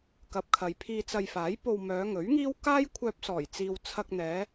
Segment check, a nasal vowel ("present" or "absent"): absent